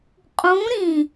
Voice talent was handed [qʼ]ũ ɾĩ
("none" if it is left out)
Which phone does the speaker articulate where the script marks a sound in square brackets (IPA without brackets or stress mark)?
qʼ